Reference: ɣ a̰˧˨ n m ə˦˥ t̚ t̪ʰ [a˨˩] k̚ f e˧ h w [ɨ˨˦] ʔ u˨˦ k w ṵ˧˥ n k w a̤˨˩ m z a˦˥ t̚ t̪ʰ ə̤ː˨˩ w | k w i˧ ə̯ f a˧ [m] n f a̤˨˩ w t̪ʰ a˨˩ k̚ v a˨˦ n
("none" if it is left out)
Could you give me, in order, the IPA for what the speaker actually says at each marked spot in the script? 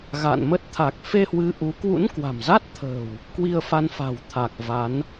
a˨˩, ɨ˨˦, none

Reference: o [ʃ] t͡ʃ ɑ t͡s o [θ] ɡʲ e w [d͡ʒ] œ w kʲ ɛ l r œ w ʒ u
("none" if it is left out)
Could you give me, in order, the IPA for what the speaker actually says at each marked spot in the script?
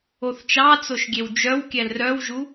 θ, ʃ, d͡ʒ

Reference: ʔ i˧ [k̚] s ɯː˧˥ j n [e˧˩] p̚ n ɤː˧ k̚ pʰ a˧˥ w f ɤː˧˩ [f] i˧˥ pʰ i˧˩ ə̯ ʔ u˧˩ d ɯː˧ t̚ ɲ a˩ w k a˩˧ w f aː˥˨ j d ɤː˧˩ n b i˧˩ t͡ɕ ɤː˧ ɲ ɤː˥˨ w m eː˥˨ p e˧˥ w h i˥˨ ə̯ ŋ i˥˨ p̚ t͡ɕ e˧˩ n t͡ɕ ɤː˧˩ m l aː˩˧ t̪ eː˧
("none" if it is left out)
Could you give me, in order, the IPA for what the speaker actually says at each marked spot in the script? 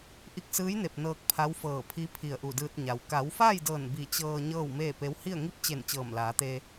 k̚, e˧˩, pʰ

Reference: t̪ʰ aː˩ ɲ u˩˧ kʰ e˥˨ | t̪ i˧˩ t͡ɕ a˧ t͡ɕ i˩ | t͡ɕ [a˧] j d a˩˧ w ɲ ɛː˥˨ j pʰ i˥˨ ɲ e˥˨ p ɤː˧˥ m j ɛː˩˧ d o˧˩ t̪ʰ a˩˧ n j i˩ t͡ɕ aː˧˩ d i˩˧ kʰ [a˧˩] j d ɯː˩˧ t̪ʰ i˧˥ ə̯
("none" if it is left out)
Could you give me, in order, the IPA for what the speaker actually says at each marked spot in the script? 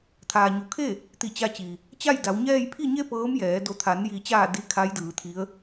a˥˨, a˧˥

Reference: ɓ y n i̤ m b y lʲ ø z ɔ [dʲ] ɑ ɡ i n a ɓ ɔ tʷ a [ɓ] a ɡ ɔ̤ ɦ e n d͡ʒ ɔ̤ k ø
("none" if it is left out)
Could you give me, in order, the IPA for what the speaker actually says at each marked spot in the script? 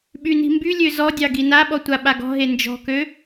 dʲ, ɓ

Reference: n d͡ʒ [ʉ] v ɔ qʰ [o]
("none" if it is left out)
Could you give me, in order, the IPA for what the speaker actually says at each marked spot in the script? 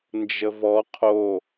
ə, o

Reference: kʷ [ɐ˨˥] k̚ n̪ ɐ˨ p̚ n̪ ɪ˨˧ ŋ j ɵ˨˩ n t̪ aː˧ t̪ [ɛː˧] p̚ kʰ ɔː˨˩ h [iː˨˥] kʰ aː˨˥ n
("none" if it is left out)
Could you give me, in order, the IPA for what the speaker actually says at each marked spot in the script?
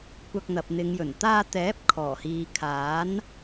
ɐ˧, ɛː˨˥, iː˨

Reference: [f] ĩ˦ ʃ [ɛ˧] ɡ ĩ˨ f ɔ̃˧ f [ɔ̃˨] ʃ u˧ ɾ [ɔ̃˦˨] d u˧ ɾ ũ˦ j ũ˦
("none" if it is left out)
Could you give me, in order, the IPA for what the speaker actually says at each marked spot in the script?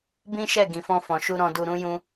b, ɛ˦˨, ɔ̃˨, ɔ̃˧

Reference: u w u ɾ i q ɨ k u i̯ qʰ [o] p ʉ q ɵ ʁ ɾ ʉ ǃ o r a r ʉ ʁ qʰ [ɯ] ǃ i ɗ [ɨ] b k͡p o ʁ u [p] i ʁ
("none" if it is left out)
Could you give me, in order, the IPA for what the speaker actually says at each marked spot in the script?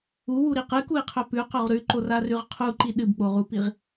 ɵ, u, ɨ, p

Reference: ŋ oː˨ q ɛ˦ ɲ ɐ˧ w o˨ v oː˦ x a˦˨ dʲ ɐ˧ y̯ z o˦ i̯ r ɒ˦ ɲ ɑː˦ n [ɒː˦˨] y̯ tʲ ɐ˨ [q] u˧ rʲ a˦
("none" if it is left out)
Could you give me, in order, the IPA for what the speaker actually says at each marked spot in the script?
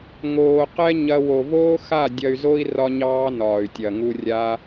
ɒː˨, ŋ

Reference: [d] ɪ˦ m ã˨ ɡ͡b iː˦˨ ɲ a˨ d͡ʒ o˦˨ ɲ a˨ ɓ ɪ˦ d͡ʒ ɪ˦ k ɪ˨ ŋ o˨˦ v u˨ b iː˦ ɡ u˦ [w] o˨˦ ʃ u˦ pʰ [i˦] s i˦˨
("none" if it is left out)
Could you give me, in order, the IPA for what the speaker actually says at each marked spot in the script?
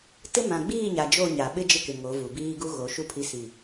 t, ɣ, i˦

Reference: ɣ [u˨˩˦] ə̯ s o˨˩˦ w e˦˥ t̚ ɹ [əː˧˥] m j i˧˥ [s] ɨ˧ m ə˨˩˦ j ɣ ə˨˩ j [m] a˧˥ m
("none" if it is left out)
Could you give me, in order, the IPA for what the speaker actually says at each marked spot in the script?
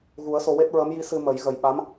u˨˩˦, əː˧˥, s, ɓ

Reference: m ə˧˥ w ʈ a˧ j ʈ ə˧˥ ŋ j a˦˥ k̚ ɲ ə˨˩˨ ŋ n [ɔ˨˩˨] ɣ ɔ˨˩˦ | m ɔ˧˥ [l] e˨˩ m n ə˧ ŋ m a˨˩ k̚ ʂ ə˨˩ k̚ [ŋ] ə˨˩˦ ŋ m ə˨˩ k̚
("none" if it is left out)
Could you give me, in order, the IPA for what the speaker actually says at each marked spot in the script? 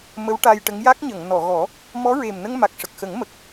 ɔ˨˩˨, ɹ, x

